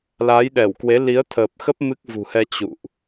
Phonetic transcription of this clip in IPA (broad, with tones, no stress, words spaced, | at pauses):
la˨˦jɗɛ˧˩wkwe˨˦ li˨˦ə̯t̪ʰəː˨˩p̚xə˦˥p̚ mɨ˦˥k̚vṳ˨˩hɛ˧ t͡ɕṵ˧˨ʔ